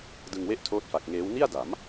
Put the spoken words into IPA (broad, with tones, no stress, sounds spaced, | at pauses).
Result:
d ɯ˧ ŋ w e˥˩ ʔ tʰ oː˦˥ t̚ f a˨˩ k̚ ŋ eː˦˥ w n i˥˩ a̯ d a˩˦ m